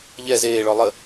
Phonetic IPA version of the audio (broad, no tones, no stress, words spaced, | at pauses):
ʎɛ zeːɭɔ lˠə